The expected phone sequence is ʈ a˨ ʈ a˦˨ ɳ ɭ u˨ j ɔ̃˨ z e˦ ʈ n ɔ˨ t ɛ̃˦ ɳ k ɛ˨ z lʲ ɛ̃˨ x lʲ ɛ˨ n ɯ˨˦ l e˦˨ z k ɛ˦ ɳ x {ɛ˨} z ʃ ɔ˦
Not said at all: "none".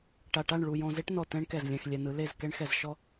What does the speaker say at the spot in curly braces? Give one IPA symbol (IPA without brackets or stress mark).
ɛ˨